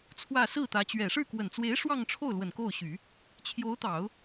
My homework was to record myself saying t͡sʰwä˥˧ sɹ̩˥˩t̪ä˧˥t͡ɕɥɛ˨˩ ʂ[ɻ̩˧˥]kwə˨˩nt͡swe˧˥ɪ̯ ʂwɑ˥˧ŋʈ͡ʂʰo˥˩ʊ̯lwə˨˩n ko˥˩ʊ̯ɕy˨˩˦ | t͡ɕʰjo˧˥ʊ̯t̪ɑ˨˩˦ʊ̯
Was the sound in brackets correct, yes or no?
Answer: no